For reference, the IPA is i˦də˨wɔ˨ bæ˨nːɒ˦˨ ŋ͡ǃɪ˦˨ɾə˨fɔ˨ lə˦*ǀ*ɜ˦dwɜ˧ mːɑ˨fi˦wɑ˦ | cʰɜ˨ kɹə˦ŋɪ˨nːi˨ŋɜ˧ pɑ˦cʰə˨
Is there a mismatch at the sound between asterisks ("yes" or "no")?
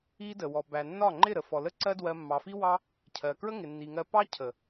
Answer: no